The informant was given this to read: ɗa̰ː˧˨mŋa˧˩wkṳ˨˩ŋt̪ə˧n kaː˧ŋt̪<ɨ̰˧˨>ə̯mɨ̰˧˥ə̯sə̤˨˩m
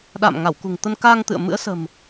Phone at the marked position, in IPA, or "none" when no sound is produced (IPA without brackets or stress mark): ɨ̰˧˨